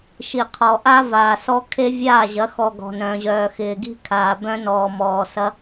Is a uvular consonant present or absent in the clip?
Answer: present